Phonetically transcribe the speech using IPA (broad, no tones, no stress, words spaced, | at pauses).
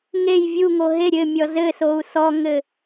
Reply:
ŋej vʲuŋo ɦe ɾʲɘmʲɔ zɘsou̯ sɔŋɘ